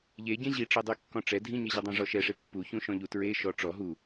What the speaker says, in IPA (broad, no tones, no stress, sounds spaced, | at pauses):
ʎ e ɟ ẽ ʑ i ʈ͡ʂ e dˤ y kː ɔ̃ ʈ͡ʂ ɛ dʱ ĩ ɲ e ʑ y dˤ ã ʐ ɔ ʃ ɛ ʂ e pː u ç ũ ʃ ɔ̃ ʎ u t ɹ e ʃ ɔ ʈ͡ʂ ɔ ɦ u